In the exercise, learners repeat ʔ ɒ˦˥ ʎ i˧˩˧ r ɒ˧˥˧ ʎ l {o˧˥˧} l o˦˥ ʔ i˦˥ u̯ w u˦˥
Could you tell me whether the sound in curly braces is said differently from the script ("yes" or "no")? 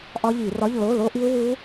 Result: no